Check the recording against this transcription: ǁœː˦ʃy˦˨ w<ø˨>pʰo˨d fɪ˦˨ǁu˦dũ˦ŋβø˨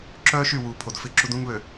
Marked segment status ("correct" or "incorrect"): incorrect